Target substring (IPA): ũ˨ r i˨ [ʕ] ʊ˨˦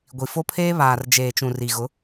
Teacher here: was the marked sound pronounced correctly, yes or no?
no